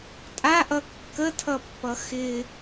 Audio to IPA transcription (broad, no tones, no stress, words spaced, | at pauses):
tʼaʔʌ kːətʰʌpːʌ xɪ